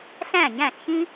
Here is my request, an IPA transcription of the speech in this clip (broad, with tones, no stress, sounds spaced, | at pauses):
ɬ æ̃˥˨ ɲ æ̃˥˨ ɬ ç ĩ˥